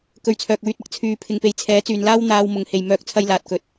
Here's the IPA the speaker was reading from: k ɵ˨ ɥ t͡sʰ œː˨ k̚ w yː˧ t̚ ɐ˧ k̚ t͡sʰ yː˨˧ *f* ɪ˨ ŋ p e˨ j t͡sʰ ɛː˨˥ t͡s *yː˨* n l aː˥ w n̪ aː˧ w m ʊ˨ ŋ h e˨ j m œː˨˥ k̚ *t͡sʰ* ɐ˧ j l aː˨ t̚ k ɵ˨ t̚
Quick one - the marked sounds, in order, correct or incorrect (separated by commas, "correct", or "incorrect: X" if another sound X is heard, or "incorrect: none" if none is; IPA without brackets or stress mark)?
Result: incorrect: pʰ, correct, correct